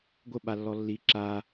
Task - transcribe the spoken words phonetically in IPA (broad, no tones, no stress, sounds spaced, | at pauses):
ɡʷ ə ɓ a lː ɔ lː i ǁ a